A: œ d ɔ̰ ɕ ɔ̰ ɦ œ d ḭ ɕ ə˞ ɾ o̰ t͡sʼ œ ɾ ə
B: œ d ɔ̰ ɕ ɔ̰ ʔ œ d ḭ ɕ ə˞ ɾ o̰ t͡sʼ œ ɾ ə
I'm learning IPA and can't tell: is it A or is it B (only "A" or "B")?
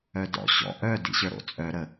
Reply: B